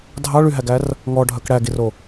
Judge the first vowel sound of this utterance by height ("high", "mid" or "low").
low